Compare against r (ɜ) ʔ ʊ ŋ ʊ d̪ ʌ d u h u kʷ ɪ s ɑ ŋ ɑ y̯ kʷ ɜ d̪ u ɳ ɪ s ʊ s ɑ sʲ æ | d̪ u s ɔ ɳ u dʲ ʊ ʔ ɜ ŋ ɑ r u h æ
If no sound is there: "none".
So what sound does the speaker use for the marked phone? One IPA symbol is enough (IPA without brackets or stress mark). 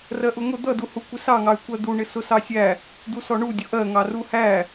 ɜ